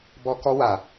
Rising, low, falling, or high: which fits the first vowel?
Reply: high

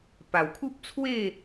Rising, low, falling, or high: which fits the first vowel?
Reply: low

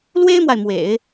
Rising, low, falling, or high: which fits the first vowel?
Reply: high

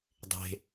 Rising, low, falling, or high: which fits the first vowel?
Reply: high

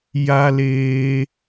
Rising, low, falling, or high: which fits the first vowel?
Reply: high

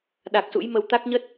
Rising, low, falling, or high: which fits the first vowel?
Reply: low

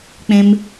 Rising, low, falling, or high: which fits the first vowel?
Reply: low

